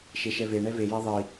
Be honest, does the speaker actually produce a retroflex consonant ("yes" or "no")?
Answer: yes